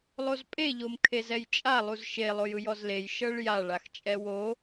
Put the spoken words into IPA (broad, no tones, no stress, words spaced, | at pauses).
lˠozpʼe ʎomkʰezɛjt͡ʃʼa lˠuzʃe lˠojɯjɔzlej ʃɤɭja ɭaxt͡ʃʼɛwo